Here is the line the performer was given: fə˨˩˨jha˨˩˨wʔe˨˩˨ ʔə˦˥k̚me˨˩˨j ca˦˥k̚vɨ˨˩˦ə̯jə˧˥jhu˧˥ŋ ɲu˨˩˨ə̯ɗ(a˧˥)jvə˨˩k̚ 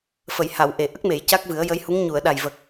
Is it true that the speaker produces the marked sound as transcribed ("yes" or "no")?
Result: no